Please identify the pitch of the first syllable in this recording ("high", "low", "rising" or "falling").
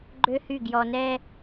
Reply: high